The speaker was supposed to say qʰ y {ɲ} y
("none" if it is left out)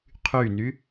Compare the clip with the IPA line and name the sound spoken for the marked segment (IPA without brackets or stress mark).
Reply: n